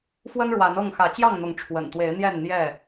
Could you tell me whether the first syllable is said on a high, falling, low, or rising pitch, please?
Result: high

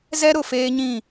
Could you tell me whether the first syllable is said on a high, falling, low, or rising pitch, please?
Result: high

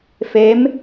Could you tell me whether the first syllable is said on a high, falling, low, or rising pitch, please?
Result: rising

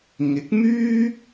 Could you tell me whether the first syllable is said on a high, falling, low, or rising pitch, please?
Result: rising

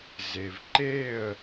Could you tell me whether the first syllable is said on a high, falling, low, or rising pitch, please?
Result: low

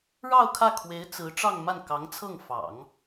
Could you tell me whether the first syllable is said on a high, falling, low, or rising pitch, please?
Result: falling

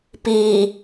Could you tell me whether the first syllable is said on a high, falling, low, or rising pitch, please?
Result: low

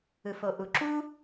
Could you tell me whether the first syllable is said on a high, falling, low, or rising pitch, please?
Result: low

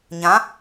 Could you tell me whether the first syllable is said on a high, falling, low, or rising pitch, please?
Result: rising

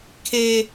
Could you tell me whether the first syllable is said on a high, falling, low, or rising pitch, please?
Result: high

